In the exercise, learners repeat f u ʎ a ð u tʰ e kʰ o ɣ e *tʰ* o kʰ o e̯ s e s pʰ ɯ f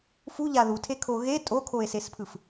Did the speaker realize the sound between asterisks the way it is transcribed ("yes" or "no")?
no